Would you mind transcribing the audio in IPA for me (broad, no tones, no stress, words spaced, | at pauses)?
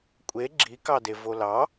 kʷʼe ɡ͡ǁikɑde volɑ